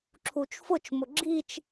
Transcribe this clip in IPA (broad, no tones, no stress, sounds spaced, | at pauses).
ǁʰ u t͡ʃ f ʊ t͡ʃ m ʊ ɡ͡ǁ i t͡ʃ